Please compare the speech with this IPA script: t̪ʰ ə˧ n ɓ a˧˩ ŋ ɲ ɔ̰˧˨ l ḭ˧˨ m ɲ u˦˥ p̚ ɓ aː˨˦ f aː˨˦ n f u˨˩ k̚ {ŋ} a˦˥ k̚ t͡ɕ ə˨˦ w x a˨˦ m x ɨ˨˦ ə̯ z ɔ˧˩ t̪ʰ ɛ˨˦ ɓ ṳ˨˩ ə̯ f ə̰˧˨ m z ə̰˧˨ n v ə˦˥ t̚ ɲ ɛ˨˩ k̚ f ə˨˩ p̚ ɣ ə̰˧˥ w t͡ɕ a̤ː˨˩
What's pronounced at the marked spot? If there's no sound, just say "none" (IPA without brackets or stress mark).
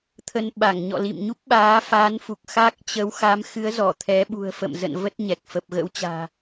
x